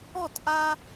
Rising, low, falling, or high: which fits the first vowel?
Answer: falling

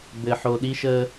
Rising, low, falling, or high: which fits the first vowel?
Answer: low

